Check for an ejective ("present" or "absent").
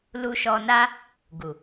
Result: absent